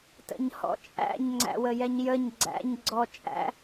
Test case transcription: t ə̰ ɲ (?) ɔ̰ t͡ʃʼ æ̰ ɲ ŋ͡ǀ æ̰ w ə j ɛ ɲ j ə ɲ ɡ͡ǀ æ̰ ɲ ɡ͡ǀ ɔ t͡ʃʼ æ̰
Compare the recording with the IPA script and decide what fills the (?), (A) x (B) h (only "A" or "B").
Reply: B